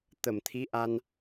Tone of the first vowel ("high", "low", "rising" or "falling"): low